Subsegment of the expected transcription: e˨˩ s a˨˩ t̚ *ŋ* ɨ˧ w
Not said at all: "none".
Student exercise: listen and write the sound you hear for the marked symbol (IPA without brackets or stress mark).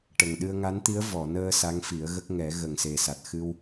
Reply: x